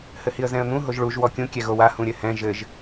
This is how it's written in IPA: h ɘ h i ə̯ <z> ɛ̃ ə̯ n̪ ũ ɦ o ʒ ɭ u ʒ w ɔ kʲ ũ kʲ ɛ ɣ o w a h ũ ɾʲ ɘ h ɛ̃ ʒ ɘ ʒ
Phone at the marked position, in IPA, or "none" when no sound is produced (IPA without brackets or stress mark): z